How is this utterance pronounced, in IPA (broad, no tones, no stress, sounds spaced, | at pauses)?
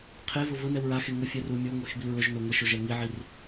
qʰ e v ʊ v ʊ n ɛ w ɹ a x e ŋ ʊ fʲ ɛ r u mʲ o ŋʷ e x b i ɹ ʊ ʒ n o ŋʷ ɪ ʃ ʊ ʒ ɛ ŋ i ʕ i r